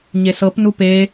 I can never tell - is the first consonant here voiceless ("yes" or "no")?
no